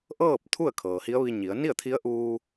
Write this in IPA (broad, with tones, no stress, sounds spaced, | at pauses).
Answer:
ʔ ɤː˥˨ p̚ t̪ʰ u˥˨ ə̯ kʰ ɤː˩ h i˧˥ ə̯ ʋ i˧ ɲ i˩˧ ə̯ n i˥˨ ə̯ t̪ʰ i˧˥ ə̯ ʔ uː˧